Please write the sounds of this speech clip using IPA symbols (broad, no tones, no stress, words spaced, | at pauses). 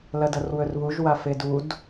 lɐdɐrwɵrβuʒ wafedud